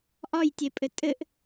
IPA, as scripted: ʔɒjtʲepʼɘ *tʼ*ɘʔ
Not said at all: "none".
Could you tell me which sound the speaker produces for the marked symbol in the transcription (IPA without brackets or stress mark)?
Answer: tʼ